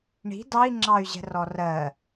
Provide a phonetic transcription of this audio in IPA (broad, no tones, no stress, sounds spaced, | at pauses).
ɳ i̤ d ɑ i̯ ŋ͡ǁ ɑ y̯ ʑ ɛ̤ r ɔ r ɜ